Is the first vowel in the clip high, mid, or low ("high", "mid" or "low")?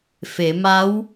mid